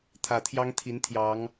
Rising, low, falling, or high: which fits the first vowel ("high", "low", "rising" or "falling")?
low